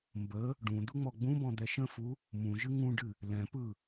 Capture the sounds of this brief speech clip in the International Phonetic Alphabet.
m b ə | ɖ ũ d̪ u ŋ͡m ɔ ɡ͡b ũ b ɔ̃ d̪ ɛ ʃ ə̃ f u | m ũ ʒ ɨ ŋ ũ ɖ ɨ | l ɛ̃ p ɯ

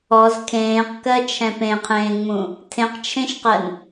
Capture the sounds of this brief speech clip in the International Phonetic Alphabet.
ɔ z kʰ ẽː q k ɜ t͡ʃʰ ɛ̃ p ẽ qʰ ẽː ŋ͡m ũ | tʰ ẽ q t͡ʃʰ ẽ ʃ q ɜ n

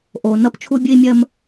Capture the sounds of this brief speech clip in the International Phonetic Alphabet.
ʔ o˩ n ʌ˥ p t͡ʃʰ u˥ bʲ ɨ˥ i̯ mʲ ɜ˥ m

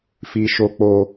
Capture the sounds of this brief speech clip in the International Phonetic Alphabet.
f i˧ ʃ o˧ k͡p o˧

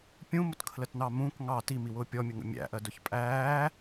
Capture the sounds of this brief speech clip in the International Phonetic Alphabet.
pʲ ũ m ʊ t kʰ l ə t n ɑ m ũ k ŋ ɑ t i m i w ʊː pʲ ɔ mʲ ə ŋ ə̰ mʲ æ̰ ʔ ɜ d ʊ ç pʼ æː

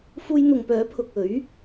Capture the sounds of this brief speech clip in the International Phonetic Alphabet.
f uː˧ j n̪ ʊ˨ ŋ p œː˨˥ pʰ ʊ˨ k̚ ɵ˨˥ ɥ

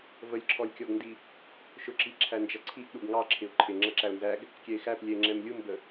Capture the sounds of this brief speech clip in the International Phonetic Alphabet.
v ə lʲ ǁʰ ɔ lʲ kʲ ɔ ɡ n d i | ʃ ʊ ǁ i ǁʰ æ n d͡ʒ ʌ ǀʰ i ʔ ɗ u ɡ ŋ ɑ ǁʰ ɪ ʊ̯ ǃʰ ɪ ŋ͡ǁ ʌ ǁ æ ʊ̯ n z æ ɡ | kʲ ɛ ɪ̯ x æ p lʲ ɛ ɪ̯ ŋ͡ǁ ɛ m lʲ u m b ə

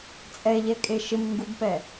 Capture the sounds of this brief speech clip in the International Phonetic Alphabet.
t͡sʼ ɛ ʎ ɛ kʼ e ʃ ɪ m ŋ ɡ u b p ɛ

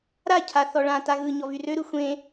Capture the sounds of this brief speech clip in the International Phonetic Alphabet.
ɾ a cʰ a θ ɔ ɭ ã t a ɣ ɯ ɲ ɔ v y r ø ɾ ɯ xʷ ẽ

